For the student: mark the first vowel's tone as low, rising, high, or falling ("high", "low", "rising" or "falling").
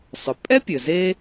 low